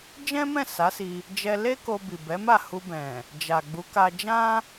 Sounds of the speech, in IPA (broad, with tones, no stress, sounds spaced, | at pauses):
d͡ʒ ɛ̃˦ m ɛ̃˦˨ s a˨˦ s i˧ | d͡ʒ ɛ˧ l e˦ k o˧ b i˨ b ɛ˨˦ m a˦˨ h u˧ b ɛ̃˨ | d͡ʒ a˨ ɡ͡b u˨˦ k a˧ d͡ʒ ã˦